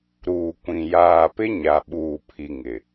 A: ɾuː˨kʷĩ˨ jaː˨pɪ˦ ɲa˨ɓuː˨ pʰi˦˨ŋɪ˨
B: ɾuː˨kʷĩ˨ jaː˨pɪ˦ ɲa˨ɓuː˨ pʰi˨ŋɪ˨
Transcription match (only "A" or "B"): B